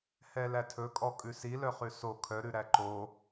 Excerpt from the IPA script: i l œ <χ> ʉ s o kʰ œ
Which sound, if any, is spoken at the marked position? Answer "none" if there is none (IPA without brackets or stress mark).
χ